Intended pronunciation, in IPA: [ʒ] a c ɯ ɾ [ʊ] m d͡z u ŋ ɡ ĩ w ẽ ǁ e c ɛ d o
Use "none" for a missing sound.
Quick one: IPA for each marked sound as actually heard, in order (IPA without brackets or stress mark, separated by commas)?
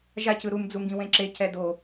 ʒ, u